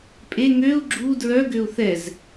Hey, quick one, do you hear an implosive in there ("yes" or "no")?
no